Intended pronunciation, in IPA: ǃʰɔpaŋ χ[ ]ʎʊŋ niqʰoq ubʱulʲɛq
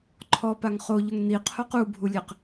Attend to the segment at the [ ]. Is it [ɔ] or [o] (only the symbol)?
o